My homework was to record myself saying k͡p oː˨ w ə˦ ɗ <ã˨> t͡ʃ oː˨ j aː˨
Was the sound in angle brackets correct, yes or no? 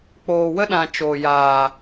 yes